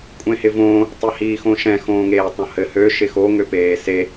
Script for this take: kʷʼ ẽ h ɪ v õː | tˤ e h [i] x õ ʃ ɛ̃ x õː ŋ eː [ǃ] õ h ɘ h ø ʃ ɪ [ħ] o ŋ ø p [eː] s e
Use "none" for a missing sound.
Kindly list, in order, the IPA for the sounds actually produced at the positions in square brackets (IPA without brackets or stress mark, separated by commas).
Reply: iː, tˤ, x, eː